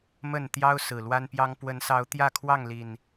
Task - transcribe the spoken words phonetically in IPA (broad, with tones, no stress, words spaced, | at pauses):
mə˥˨n t̪jɑ˦ʊ̯ sɹ̩˨˩lwa˦npjɑ˦ŋ pwə˨˦nsɑ˨˦ʊ̯ t̪jä˥˨ kʰwɑ˥˨ŋli˨˩n